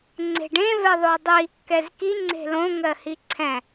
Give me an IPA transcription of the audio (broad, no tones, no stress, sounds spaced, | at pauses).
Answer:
ŋ͡ǀ e̤ ɖ ẽ v ɛ ðˤ o dˤ i | k ɛ z k i ŋ͡ǀ e̤ l õ ŋ ɜ h i ǀʰ ɛ̃